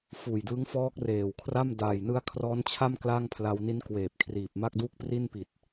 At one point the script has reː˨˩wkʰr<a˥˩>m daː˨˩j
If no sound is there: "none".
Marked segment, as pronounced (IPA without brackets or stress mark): a˥˩